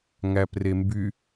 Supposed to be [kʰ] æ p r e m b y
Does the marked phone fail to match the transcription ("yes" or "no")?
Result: yes